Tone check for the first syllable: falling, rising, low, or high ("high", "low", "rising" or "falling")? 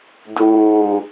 low